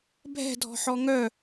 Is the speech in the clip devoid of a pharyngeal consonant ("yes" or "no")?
no